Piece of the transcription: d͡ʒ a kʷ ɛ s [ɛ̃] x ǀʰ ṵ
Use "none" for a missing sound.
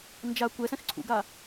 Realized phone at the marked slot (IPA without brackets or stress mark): ɛ̃